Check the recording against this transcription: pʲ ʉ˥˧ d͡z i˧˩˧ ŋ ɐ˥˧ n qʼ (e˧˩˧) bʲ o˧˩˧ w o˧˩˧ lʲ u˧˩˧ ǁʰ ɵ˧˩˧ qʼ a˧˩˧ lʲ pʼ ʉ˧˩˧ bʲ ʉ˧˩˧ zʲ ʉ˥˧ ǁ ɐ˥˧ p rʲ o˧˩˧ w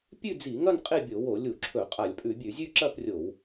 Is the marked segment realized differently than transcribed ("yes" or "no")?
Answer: yes